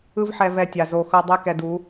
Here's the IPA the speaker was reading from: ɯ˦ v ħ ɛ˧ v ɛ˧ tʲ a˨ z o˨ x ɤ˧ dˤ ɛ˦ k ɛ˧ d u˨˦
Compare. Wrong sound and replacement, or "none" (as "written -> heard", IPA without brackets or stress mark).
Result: none